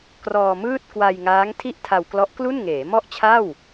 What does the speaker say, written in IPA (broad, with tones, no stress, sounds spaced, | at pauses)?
k r ɔː˧ m ɯː˥˩ t̚ k w a˧ j ŋ aː˦˥ ŋ tʰ i˥˩ ʔ tʰ a˧ w k l ɔ˦˥ ʔ k l u˥˩ n ŋ eː˩˦ m ɔ˥˩ ʔ t͡ɕʰ a˥˩ w